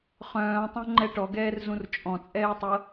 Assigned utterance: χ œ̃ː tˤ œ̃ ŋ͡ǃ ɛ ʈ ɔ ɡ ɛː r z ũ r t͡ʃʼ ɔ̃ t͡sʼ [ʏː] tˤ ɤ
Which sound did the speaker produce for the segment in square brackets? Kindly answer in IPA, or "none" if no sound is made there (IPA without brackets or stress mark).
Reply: ɛː